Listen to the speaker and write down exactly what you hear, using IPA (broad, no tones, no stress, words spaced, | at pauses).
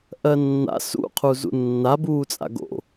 ʔɜnːa̰ sṵ qʰuzṵnːa buːt͡sʼa̰ɡo̰